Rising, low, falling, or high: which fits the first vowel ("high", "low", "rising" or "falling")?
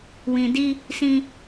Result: low